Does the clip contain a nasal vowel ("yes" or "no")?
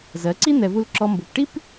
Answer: no